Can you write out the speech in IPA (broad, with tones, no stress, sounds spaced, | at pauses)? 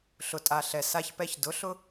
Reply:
ɬ ʊ˨ tʼ a˨ ɬ ɛ˨ s a˦ ç p ɛ˦ ç d ʊ˨˦ ɬ ʊ˦